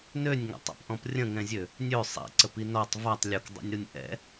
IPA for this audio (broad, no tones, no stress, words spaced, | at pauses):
nønʲŋa̰tˤɛ̰pʔɔ̃p rʲə̃ŋɛ̃zʲø | nʲø sˤḭǀəpi nɔtˤ vatˤ lʲukdˤɛ̰nʲɾunʲ ʔɛ̰